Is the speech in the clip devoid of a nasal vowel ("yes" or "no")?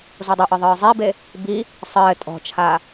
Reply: yes